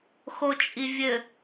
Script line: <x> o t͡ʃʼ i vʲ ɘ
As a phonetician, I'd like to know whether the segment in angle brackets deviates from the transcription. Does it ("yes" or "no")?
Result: no